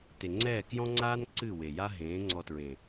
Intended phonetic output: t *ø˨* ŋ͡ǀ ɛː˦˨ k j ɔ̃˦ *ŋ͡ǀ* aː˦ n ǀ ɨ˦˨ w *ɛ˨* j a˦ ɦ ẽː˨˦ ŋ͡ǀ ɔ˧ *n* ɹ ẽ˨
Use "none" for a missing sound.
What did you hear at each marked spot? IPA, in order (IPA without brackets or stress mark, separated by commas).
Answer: e˨, ŋ͡ǀ, e˨, t